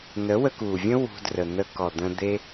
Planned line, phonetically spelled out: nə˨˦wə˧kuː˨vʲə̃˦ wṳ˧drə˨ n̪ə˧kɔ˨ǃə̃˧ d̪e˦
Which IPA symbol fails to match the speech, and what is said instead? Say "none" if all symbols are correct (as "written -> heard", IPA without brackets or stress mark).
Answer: ǃ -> d̪